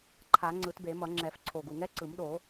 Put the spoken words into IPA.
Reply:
ǃʰ a˨˩˦ ŋ͡ǀ ɯ˨˩˦ t b e˨˩˦ m ʌ˨˩˦ ŋ͡ǁ ɛ˨˩˦ f ǀʰ o˨˩ ɡ u˨˩ ŋ ɛ˦˥ ǀ ɯ˨˩˦ m ɗ o˨˩˦

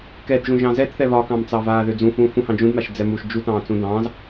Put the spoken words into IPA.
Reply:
k ɛ d ʒ ũ ʒ ɑ̃ z ɛ t θ ɛ β ɒ k ɑ̃ m t͡s ɑ v aː ð ø d͡z ũ f ũː f ũ h ɑ̃ d͡ʒ ũ d m a ʃ d͡z ɛ m u ʃ d͡ʒ u t ɑ̃ː t͡s ũ d ɑ̃ː z

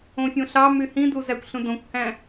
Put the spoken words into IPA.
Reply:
õ fʲ õ ɬ ɑ m y h ĩ d u z æ kʷ ɬ ũ d õ kʷ h æ̃

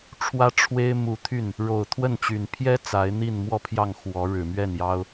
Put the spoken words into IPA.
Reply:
ʈ͡ʂʰ w ä˥ ʈ͡ʂʰ w e˥ ɪ̯ m u˧˥ t̪ʰ y˥˩ n | ɻ o˨˩ ʊ̯ t̪ʰ w ə˥˩ n t͡ɕ y˨˩ n pʰ j ɛ˥ t͡s a˧˥ ɪ̯ n̪ i˥˧ n m w ɔ˥˧ pʰ j ɑ˥˩ ŋ x w ɔ˧˥ ɻ ɻ̩˨˩ m ɥ ɛ˥˩ n j ɑ˥ ʊ̯

